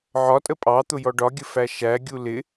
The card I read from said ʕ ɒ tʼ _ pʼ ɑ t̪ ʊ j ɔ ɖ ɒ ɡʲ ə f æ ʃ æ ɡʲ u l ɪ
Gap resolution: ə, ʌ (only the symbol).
ə